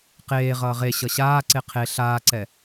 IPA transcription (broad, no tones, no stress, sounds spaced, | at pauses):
q eː ʁ ʌː ʁ e ɕ ʌ ɕ aː ǀ e qʰ e ɬ aː ǀ ɛ